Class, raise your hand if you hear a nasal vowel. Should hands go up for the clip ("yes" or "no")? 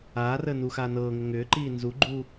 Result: no